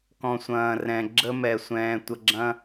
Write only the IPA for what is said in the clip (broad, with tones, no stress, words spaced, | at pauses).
kɔ̃˨sʷɐ̃ː˨rɛ̃˨ ɡ͡ǁə˦mɛ˧sʷɛ̃ː˧ tʷə˧ɡ͡ǁɐ̃˦